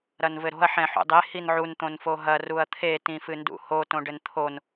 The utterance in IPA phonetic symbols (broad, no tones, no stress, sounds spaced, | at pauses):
ɾ ɐ n v ɘ ɾ o̤ ɐ̯ ħ ɛ̃ ħ ṵ dˤ e h i n ʕ u n t̪ õ n f o ɦ ɐ r u ɐ̯ t̪ʰ e t ĩ f ɨ n d ṵ h o t õ ɖ ɘ n t̪ʰ o n